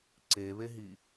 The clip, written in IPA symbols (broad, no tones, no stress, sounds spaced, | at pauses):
ǀ e β e ɦ i